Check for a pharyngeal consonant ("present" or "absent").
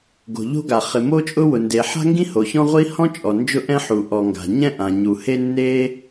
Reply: present